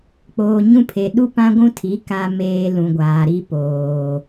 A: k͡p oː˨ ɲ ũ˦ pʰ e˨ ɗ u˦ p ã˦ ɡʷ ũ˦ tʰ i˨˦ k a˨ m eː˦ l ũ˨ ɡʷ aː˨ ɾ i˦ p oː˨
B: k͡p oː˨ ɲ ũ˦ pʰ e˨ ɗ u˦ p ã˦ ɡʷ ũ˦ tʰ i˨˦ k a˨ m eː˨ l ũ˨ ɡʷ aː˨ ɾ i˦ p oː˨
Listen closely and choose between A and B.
B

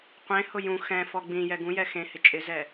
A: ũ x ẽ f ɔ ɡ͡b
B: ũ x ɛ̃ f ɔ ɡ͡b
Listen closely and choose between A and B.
B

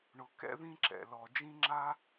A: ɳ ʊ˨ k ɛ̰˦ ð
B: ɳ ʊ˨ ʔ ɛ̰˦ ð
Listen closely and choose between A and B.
A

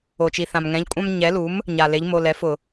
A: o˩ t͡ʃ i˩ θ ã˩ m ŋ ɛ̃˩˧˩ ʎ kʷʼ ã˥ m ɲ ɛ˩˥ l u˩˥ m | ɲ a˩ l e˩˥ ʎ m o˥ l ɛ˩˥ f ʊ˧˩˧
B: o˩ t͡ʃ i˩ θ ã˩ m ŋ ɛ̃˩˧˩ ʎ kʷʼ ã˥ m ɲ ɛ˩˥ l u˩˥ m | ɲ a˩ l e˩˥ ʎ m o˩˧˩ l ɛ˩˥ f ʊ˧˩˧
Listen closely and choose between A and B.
B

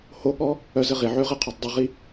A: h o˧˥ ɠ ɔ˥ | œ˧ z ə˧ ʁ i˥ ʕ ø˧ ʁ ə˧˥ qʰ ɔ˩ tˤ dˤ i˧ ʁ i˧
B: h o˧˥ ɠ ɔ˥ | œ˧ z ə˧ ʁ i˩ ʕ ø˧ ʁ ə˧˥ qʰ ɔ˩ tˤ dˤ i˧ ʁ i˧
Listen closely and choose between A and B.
B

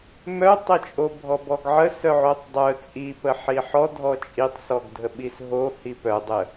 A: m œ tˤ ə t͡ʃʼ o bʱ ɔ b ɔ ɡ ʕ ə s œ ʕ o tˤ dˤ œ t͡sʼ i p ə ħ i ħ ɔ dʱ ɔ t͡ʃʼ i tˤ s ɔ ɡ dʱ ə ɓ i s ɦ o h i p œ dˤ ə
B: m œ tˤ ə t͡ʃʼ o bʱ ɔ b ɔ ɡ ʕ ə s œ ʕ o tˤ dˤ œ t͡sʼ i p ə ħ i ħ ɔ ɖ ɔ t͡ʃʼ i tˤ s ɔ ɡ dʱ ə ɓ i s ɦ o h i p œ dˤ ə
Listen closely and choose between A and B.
A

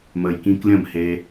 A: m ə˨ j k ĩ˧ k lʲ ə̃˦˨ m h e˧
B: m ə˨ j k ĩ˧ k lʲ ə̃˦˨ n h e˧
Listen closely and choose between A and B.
A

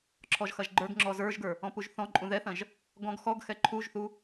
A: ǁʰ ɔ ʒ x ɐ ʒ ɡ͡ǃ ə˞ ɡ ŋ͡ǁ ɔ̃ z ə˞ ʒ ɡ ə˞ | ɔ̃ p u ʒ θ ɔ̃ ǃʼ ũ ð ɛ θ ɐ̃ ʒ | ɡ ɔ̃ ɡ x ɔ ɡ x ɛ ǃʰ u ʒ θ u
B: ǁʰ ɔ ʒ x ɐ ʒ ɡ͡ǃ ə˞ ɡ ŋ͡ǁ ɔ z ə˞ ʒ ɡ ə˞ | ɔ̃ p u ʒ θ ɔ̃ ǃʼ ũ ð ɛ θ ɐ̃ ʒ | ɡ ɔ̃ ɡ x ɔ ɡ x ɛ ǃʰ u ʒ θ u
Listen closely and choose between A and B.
B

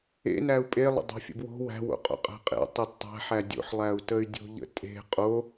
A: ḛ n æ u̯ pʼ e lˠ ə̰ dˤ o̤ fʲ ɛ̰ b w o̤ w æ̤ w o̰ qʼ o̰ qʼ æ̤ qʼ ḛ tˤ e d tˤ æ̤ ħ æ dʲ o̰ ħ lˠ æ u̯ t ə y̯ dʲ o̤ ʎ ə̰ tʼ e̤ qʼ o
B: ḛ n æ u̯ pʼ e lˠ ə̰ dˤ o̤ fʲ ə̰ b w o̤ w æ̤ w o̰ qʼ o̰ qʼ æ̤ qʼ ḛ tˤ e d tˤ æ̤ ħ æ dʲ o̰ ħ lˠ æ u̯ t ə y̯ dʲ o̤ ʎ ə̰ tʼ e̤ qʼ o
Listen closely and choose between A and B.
B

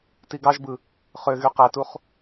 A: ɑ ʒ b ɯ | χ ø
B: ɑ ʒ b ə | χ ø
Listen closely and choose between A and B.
A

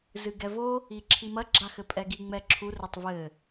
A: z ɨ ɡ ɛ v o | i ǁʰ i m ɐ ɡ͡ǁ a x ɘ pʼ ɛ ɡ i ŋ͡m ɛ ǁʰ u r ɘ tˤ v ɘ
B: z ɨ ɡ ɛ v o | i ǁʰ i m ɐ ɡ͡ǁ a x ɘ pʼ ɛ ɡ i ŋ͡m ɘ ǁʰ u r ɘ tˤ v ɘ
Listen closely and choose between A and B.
A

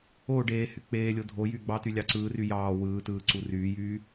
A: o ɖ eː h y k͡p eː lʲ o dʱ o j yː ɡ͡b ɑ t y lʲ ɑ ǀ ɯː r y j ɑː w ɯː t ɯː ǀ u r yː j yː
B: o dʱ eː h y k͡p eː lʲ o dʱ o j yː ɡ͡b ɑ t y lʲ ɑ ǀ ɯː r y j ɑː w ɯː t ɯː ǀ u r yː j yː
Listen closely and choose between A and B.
A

